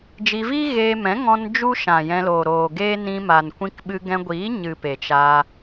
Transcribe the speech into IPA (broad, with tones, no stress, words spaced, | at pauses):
d͡ʒi˧vi˦ɣeː˧mɛ̃˨˦ ŋɔ̃˧n d͡ʒu˦ʃã˨ jɛ̃˧loː˨ɾoː˨ɡeː˦ nĩ˧ma˨n kʷĩ˧kɓɨ˧ɡɛ̃˧ɡʷiː˨˦ ɲɨ˨ pe˨t͡ʃa˧